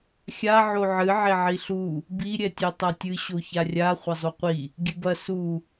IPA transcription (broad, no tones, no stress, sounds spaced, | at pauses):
xʲ a ʕ o ʕ ɨ ʕ e ʕ i ɬ u | b i ɾʲ ɛ tʲ e tˤ a tʲ ɨ ɕ o ç a rʲ a χʷ ɐ zˤ u qʷ i | ɡʲ ɨ b ɐ s u